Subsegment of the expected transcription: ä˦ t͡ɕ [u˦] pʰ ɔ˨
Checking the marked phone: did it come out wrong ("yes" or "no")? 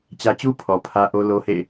no